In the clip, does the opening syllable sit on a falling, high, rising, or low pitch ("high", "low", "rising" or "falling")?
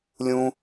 high